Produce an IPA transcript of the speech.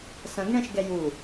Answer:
s ɐ̃ ɡ ɳ ɛ̃ ʃ ɡ ɛ j u

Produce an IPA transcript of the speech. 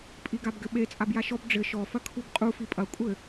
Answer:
pʼ i ɡ a b ɡ ɘ ɓ e t͡sʼ a b j a ʃ ɔ b ɖ͡ʐ ɘ ʃ ɔ f ɐ kʰ u b qʼ u f i pʼ ɐ kʷʼ ɘ

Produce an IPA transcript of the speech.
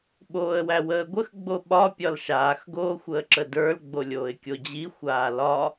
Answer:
ɓ oː ə̯ w æ w əː ɡʷ ə x ɡ͡b o ɓ ɒ pʲ ɒ l ʃ aː x ɡ oː xʷ əː ǁ ə d ə˞ l ɡ͡b o lʲ oː ɪ̯ kʲ o d͡ʑ i xʷ aː l ɒ

